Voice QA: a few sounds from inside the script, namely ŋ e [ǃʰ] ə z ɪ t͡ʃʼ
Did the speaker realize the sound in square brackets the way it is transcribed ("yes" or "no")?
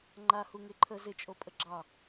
yes